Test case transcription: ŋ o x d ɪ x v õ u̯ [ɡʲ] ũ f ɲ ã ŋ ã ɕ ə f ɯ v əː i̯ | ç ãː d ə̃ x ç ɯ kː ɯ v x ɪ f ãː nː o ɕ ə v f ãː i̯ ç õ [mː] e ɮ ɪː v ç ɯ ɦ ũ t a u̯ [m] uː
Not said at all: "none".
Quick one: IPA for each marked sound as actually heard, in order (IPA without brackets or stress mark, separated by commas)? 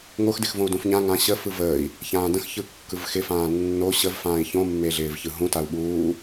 d, mː, ɓ